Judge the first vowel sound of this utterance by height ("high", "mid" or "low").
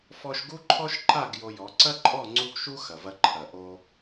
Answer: mid